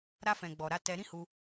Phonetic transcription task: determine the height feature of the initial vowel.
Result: low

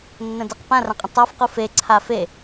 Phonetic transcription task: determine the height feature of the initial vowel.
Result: mid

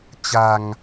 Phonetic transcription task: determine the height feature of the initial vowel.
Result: low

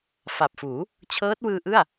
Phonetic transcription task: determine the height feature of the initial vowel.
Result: low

